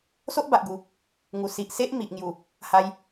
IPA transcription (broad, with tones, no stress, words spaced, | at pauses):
so˦ʔba˨ʔɡu˨˩ | ŋu˨˩ si˨ʔse˦ʔ mi˨ʔŋju˨˩ | ha˧j